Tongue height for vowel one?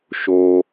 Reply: mid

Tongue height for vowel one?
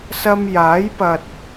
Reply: low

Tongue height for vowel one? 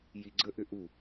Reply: high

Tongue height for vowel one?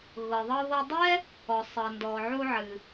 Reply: mid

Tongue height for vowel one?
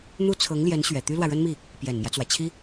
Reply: high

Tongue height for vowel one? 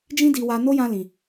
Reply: high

